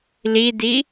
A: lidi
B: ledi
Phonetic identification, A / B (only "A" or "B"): A